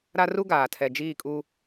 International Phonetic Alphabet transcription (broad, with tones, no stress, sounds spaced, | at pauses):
ɾ a˦ r u˦ ɡ aː˨ tʰ ɛ˨ d͡ʒ iː˦˨ kʼ u˦